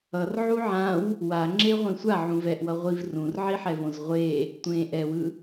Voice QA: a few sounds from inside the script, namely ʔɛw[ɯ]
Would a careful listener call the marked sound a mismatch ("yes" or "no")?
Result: no